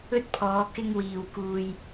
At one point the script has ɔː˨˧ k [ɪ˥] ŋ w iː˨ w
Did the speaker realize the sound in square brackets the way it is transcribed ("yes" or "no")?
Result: yes